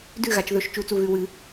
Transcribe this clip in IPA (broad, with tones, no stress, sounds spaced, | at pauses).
d ʉ˥˩ ɣ a˩˧ t͡ʃ ð ɵ˧˩˧ ʃ t͡ʃ u˧˩˧ t͡s u˧˩ ɣ ʉ˧˩ w ɨ˧˩˧